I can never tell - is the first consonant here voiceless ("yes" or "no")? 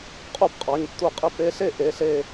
yes